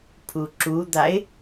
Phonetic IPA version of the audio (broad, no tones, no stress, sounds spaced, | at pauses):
pʰ u ǁ u d̪ a ɪ̯